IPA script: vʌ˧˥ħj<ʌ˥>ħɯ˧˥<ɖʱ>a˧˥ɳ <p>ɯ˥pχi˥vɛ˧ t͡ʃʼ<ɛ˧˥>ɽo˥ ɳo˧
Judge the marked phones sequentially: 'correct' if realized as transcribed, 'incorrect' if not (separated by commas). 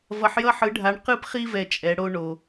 correct, correct, incorrect, correct